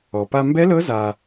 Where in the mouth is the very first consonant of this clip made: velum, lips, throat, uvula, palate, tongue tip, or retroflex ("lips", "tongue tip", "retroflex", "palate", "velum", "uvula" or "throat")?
lips